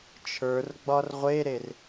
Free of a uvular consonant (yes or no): no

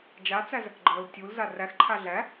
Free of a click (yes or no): no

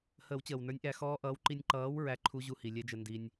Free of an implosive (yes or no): yes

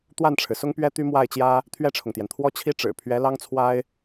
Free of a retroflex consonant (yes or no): no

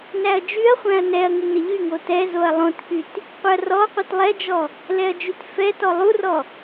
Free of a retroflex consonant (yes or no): yes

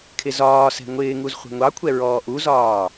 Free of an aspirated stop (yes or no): no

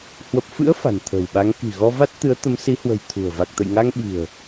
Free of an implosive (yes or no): no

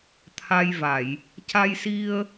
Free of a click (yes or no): yes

